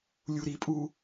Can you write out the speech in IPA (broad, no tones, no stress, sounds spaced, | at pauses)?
lʲ u ɾ i pʼ u